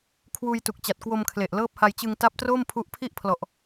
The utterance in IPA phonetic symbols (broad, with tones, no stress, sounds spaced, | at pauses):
kʰ w uː˧ j t u˨˩ k̚ t͡ɕ a˨˩ t̚ k w o˧ m kʰ l e˨˩ ʔ l ɤː˦˥ p̚ h a˧ j t͡ɕ ɯ˧ ŋ t a˦˥ p̚ t r oː˥˩ m pʰ u˦˥ ʔ pʰ i˥˩ ʔ pʰ l ɔ˨˩ ʔ